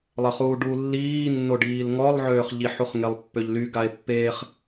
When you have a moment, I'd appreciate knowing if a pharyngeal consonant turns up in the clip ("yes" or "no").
yes